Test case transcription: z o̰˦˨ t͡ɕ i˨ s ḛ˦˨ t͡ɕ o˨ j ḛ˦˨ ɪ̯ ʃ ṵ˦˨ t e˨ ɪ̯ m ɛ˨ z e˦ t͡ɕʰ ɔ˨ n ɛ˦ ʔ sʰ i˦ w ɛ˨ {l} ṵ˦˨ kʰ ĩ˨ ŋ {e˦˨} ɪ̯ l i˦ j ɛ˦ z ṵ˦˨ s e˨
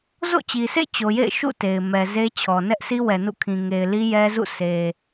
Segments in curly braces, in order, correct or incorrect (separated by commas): incorrect, incorrect